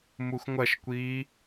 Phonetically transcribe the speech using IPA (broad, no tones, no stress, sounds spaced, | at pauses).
m u x ŋʷ ɐ ʃ kʷ iː